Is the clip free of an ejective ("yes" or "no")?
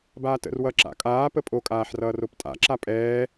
no